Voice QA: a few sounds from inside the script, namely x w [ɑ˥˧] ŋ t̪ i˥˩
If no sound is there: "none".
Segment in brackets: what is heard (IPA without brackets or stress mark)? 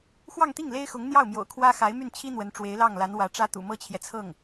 ɑ˥˧